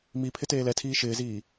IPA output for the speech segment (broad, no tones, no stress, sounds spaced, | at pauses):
m i pʰ ɪ t eː l ɛ tʰ iː ʃ ɪː z iː